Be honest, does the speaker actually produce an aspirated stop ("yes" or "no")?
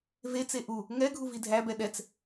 no